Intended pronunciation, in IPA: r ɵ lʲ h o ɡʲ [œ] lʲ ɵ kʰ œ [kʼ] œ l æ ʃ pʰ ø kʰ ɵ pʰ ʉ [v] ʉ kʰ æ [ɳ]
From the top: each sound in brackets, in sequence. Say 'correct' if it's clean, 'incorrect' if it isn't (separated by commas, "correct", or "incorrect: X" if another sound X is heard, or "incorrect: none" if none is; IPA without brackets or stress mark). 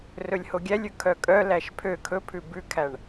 incorrect: æ, correct, incorrect: b, correct